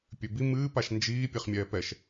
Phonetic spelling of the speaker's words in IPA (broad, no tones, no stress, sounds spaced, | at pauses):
pʲ ø b i m ɨː p a ʃ n d͡ʒ iː pʲ ɛ χ mʲ ɛː p ɛ ʃ